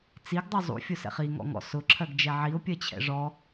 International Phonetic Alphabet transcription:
t͡s i ɡ dˤ u zˤ ṵ fʲ ʊ s ɛ̰ χ i ŋ ɔ̰ ŋ ɔ̰ s ʊ ǁʰ ɜ ɡ d͡ʒ ɛ ʕ i ʊ̯ pʲ ɜ t͡ɕʰ ɛ̰ ʐ ɔ

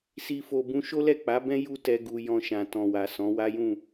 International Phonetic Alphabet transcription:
s i˨ f o˨ b ũ˧ ʃ o˦ l ɛ˦˨ k͡p a˨˦ b ɛ̃˦ j u˦ t ɛ˧ ɡ u˧ j ɔ̃˧ ʃ ã˨ t ɔ̃˨ w a˨ s ɔ̃˨˦ w a˦ j ũ˦˨

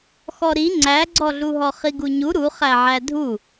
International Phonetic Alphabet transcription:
x ɔ ɾ i ŋ͡ǀ æ ɡ͡ǀ ɔ ɮ u ɦ ɔ χ i ɡ u ɲ u ɾ u χ æ ʕ æ dʱ u

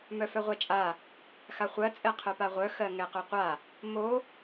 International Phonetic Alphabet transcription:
m œ f œ ʁʷ ɛ t͡ʃʼ a | x a χʷ ɜ t͡sʼ ɛ qʰ œ p a ʁʷ œ x ɜ ŋ ɛ q œ qʷ a | m o

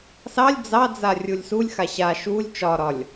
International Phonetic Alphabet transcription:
s ɑ lʲ d͡z ɑ d͡z a rʲ u lʲ s u lʲ x a ɕ a ʃ u lʲ t͡ʃ ɒ ɾ ɒ lʲ

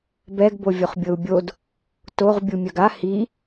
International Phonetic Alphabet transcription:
b ɛ ɡ b o vʲ o χ bʲ ɤ u̯ bʲ o d | t o ʁ bʲ u mʲ œ ɡ a h i

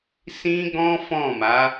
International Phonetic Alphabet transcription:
s ĩ˦ ɡ ɔ̃˦ f ɔ̃˦˨ m a˨˦

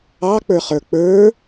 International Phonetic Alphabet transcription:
ɑ k͡p ə˞ χ ə˞ k͡p ə˞

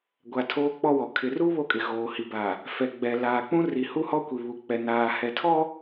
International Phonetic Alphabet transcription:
ɡʷ a˨ tʰ oː˦ k͡p ɔ˦ w ɔ˨ kʰ ɪ˨ r u˦ β o˦ kʼ ɪ˨ ɣ oː˨ h i˨ b a˨ | f ɛ˨ ɡ͡b ɛ˨ l aː˨ k͡p ũ˦ r i˨ h u˦ h ɔ˦ kʷ i˨ β u˨ k͡p ɛ˨ n aː˨ h ɛ˨ tʰ ɔ˦

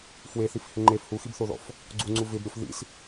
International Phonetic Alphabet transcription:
f w e θ i f h ɪ ŋ͡ǃ e f h u x i b θ o ð ɔ̰ f | ɡ͡ǀ u ŋ͡ǀ u v ɪ b ɾʲ o f ð ḭ s

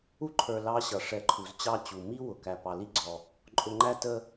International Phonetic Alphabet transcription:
u˥ ǃʰ ə˞˨ l ɑ˦ ɕ ʌ˩ ʂ ɛ˨ ǃʰ u˩ z t͡ɕ ɑ˦ t͡ɕ u˩ m i˥ w ʊ˩ k æ˨ p ɑ˨ l i˥ ɡ͡ǀ ɔ˨ | ǃʼ ʊ˨ ŋ͡ǃ æ˦ t ə˦

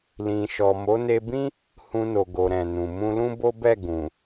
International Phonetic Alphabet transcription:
l ĩ˨ ʃ ɔ˨ m o˨˦ n e˧ b ĩ˦ | h ũ˧ n o˨ ɡ o˨ ɾ ɛ̃˨ n ũ˨ m ũ˧ l ũ˦ b o˦ b ɛ˦˨ ɡ ũ˨

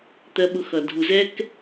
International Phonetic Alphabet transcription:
t̪ ɜ˧ ɓ ʊ˧ x ʌ˨ dʱ u˨ z ɛ˦ k

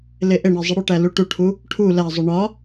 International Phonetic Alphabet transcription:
l e ʔ e ɳ e zˤ i ɽ o ʈ æ l u ʈ u ʈʰ u | ʈʰ u l æ zˤ u ɳ ɒ

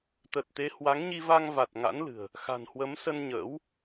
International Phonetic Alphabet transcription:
t̪ ə˨˩ t̚ t̪ e˨˦ h w a˨˦ ŋ ɲ i˧ v a˧ ŋ v a˨˩ t̚ ŋ a̰˧˥ n l ɨ̤˨˩ ə̯ | x a̤˨˩ n h w ə˨˦ m s ə˧ n ɲ ə̰ː˧˥ w

